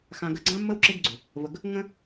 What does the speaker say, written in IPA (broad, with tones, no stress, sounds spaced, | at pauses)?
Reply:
x ã˨ ɡ ə˨ ɡ͡ǀ ã˦ mː ə˦ w ǁ e˦ ɡ ɡ͡ǀ ʏ˨ | v ə˨ ɡ | ŋ ə̃˦